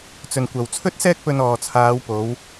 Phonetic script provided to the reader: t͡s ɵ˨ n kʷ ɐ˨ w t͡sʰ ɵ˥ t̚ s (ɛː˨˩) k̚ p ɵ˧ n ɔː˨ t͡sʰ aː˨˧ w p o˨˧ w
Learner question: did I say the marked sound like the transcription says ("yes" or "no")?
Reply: no